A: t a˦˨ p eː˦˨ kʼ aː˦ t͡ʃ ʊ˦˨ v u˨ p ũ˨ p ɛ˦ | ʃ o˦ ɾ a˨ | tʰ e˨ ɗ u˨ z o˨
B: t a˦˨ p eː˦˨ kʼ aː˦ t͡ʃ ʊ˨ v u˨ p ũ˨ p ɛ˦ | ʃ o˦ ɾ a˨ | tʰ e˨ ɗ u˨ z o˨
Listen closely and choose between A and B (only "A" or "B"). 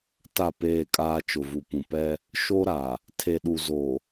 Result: B